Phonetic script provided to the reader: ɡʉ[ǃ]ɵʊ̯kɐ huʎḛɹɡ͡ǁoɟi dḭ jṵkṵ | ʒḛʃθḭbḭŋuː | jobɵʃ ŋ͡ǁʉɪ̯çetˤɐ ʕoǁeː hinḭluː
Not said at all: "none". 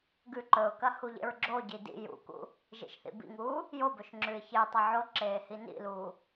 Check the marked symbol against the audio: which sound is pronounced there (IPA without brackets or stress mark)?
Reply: ǃ